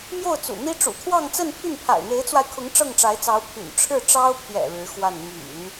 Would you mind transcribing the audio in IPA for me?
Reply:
m j o˥˩ ʊ̯ t͡s ṵ˨˩ n̪ i˥ ʈ͡ʂ ṵ˨˩ t̪ʰ w ɑ˥˧ ŋ t͡s ə˥˧ n pʰ y˥˩ n pʰ a̰˨˩ ɪ̯ n̪ e˧˥ ɪ̯ t͡s w a˧ ɪ̯ kʰ ʊ˧˥ ŋ ʈ͡ʂ ɤ˥˩ ŋ ʈ͡ʂ a˧˥ ɪ̯ t͡s ɑ˧˥ ʊ̯ pʰ y̰˨˩ n ʈ͡ʂʰ ɻ̩˥˩ ʈ͡ʂ ɑ˥ ʊ̯ pʰ j ɛ̰˨˩ ɻ ɻ̩˧˥ x w a˥˩ n m y̰˨˩˦ n

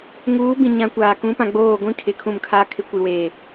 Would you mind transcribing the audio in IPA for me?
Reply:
ŋ uː˨˦ b ĩ˨ ɲ ã˨ kʷ aː˨ k ũ˨˦ p ã˨ ɡ͡b oː˦˨ ɡʷ ĩ˦ kʰ ɪ˨ kʰ ũ˦˨ m kʰ aː˦ kʰ ɪ˦ kʷ i˨ w eː˨

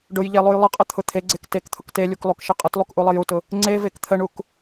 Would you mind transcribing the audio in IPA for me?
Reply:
ɖ ʊ j ʎ e lˠ u j lˠ ə qʼ ə t̪ʰ ʊ t̪ʰ e ɡ͡ǀ e k t e k t̪ʰ ʊ k t e lʲ u k lˠ u k ʃ ə qʼ ə t lˠ u k ʔ u lˠ ə j u t ʊ | ŋ͡ǀ e v e k t̪ʰ ə ɳ u k

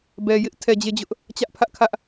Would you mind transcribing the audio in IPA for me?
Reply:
b ɛ˨ j ɪ˦ ʔ tʰ ɛ˨ d͡ʑ e˦˨ d͡ʑ ʊ˦ ʔ | t͡ɕ ä˦ ʔ pʰ ä˦ ʔ kʰ ä˦ ʔ

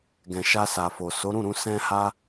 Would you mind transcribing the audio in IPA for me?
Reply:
ɡ ɛ̃˨ ʃ a˧ s a˨ f o˨ s o˨˦ ɾ ũ˦˨ ɾ ũ˧ s ɛ̃˧ h a˧

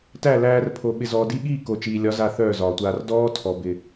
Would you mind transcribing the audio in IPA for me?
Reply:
t æ˦˨ l æː˧ r pʰ o˨ ɓ ɪ˨ z ɔː˨ d i˧ ɠ iː˦˨ k o˨ t͡ʃ iː˨ lʲ ɒ˨˦ z a˦˨ θ œː˦˨ z ɒː˨ tʷ aː˧ r d ɔː˦ tʰ ɔ˨ b ɪ˨

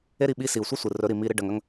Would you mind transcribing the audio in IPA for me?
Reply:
e˦ ɾ i˦˨ ɓ i˧ s i˨ u̯ sʷ i˦ sʷ ɨ˨ r ɵ˨˦ ɾ i˨ m i˧ ɾ ɨ˦ ɖ ɐ˧ ŋ ɐ˦ ŋ

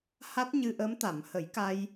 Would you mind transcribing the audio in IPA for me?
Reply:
h a˦˥ t̚ ɲ ɨ˧ ʔ ə˧˥ m t̪ a˨˩˨ m h ə˨˩˦ j k a˧ j

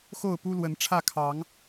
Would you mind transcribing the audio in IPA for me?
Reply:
x o˥˨ ʊ̯ p u˦ l w ə˨˦ n ʈ͡ʂʰ ä˥˨ kʰ ɑ˨˦ ŋ

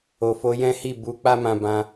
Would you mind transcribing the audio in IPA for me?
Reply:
o˨ f o˧ j ɛ̃˦ h i˦˨ b u˨˦ k͡p a˦ m ã˧ b ã˧

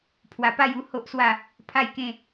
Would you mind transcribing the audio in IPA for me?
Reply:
pʰ w a˨˩ p a˥˧ j u˥˧ h o˦ ʔ s w a˥˧ | pʰ a˥˧ j k ẽ˥˧

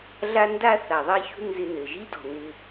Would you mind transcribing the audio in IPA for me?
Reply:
ɮ a˥ n d a˥ θ a˩ ðˤ ɛ˥ ç ṳ˥ n z ɪ˧ n ɘ˩ ʒ i˥ d ɔ̤˩ n ɪ˧

